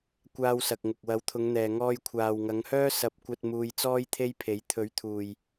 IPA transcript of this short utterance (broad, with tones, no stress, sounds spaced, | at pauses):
kʷ aː˧ w s ɐ˨ k̚ ŋ ʊ˨ k̚ w ɐ˨˥ w t̪ʰ ʊ˨˧ ŋ n̪ ɛː˨ ŋ ɔː˧ j kʷʰ aː˨ w ŋ ɐ˨˧ ŋ h œː˥ s ɐ˧ p̚ kʷ ɐ˧ t̚ m uː˧ j t͡s ɔː˥ j t̪ʰ e˥ j pʰ e˨˥ j t̪ʰ ɵ˨˥ ɥ t̪ʰ uː˨ j